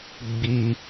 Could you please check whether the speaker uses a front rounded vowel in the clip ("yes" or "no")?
no